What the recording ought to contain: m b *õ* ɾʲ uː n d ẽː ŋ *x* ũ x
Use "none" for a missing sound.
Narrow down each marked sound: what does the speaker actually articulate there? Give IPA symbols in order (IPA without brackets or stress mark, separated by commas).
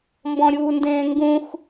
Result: ɔ̃, ɡ